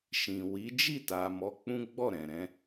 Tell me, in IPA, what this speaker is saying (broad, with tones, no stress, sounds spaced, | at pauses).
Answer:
ʃ ĩ˨ w i˨˦ d͡ʒ i˦˨ t a˨ m ɔ˨˦ k͡p ũ˦ ɡ͡b ɔ˦˨ ɾ ɛ̃˨ ɾ ɛ̃˨˦